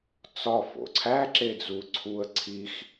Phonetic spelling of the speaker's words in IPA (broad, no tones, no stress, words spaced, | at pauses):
t͡sɒ fo̰ǀʰæ ǁed͡zuǀʰuə̯ ǀʰix